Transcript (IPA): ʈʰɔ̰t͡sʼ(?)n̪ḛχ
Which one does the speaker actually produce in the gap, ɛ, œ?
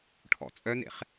œ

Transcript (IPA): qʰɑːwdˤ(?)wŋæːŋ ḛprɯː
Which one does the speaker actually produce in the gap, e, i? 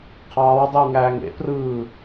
i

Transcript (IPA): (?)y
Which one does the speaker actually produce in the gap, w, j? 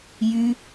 j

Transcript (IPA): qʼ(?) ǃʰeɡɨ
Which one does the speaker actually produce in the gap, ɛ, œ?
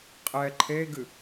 ɛ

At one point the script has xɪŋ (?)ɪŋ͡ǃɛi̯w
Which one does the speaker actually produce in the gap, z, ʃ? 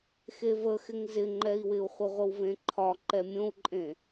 z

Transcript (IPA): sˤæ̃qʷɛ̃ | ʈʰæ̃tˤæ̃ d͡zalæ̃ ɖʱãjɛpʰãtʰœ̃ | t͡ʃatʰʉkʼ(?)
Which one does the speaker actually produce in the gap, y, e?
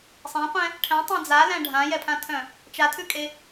e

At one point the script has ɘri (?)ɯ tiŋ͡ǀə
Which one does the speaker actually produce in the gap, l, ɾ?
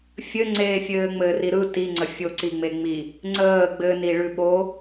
ɾ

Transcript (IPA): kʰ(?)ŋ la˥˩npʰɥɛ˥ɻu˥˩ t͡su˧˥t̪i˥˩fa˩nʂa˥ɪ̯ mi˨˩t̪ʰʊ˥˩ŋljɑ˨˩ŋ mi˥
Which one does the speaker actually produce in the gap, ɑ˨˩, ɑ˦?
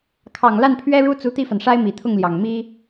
ɑ˨˩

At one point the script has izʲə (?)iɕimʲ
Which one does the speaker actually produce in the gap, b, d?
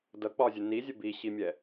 b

